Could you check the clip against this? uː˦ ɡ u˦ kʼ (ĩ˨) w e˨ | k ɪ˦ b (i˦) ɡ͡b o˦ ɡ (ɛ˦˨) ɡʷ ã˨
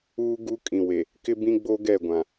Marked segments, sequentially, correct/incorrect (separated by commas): correct, incorrect, correct